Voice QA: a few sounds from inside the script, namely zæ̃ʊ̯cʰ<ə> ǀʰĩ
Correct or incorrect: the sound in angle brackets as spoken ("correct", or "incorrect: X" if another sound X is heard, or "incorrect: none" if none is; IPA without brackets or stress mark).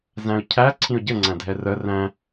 incorrect: æ